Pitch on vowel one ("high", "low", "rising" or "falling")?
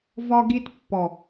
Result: high